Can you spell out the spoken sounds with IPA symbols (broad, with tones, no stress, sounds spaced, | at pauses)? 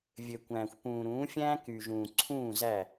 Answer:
vʲ ø˨ kʷ æ̃ː˨ xʷ p ũː˨ ɾ ũː˨˦ fʲ æ̃ː˦ k y˨ ʒ ũː˨ ǀʰ ũː˦˨ z æ˦˨